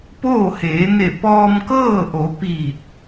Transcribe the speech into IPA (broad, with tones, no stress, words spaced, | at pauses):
poː˥˨heː˩˧ne˧˩ pɔː˧mkɤː˥˨ʔo˩˧ piː˧˩t̚